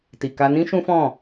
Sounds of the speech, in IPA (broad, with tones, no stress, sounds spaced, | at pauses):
t i˨ k a˧ n ĩ˦ ʃ ũ˦ f ɔ̃˦˨